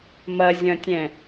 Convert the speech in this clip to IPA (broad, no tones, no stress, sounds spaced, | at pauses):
m ɐ zʲ ɐ̃ tʲ ɛ̃